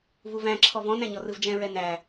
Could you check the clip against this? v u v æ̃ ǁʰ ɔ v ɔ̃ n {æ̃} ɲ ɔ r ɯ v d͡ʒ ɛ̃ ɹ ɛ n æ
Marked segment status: correct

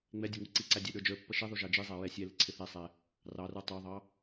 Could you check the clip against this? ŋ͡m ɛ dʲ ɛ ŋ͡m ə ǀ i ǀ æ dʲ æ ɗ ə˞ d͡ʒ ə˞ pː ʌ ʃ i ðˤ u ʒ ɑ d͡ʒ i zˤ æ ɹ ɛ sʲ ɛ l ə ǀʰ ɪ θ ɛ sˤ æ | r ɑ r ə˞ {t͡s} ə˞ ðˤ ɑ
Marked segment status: incorrect: tˤ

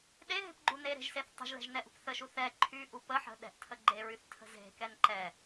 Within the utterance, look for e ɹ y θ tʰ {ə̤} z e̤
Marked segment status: correct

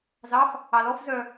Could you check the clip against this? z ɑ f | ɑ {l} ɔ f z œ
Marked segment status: correct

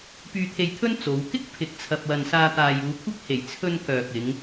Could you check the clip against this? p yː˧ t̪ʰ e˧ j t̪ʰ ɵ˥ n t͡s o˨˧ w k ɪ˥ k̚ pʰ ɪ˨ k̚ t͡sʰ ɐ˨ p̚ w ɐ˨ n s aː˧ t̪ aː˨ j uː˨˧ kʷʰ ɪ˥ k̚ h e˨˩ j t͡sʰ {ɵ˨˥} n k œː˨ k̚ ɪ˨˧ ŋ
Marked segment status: incorrect: ɵ˧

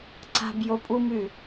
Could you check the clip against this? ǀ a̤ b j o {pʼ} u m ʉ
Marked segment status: correct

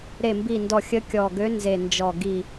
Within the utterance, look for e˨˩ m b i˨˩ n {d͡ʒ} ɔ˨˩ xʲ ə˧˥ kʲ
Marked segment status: incorrect: d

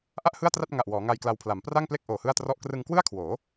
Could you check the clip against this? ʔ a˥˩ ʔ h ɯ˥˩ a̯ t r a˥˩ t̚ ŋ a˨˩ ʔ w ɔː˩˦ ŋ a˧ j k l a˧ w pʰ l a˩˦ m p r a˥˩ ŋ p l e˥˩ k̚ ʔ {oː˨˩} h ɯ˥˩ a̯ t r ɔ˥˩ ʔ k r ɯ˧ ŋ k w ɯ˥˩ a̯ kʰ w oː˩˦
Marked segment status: correct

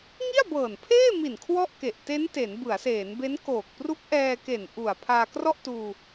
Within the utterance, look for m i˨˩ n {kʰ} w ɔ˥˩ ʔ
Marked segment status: correct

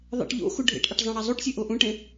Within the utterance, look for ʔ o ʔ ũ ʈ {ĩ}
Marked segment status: incorrect: ẽ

